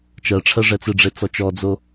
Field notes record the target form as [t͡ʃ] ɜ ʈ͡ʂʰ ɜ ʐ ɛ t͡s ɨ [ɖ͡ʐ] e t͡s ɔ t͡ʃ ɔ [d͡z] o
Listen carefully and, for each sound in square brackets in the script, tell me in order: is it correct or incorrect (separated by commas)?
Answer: correct, correct, correct